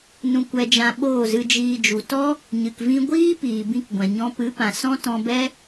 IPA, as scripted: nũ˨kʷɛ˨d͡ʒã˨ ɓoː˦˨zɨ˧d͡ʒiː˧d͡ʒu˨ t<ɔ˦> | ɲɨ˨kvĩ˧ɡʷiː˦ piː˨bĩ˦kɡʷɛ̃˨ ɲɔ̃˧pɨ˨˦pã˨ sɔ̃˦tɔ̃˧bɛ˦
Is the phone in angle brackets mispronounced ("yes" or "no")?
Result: no